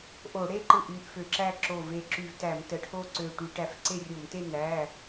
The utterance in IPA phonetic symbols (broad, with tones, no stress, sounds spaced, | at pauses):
ʔ o˧˩˧ ɽ e˥˧ ǃ ɯ˧˩ ʔ y˩˧˩ ʔ f ø˧˩˧ ǁ æ˥˧ ǁ o˧˩ v e˧˩ ǁ y˧˩ v t æ˧˩˧ m t ə˩˧˩ ʈʰ o˥˧ ǀ ø˧˩ ʈ y˧˩˧ ʈ æ˧ f ǀ e˥˧ rʲ o˧˩˧ m t e˥˧ n æ˩˧˩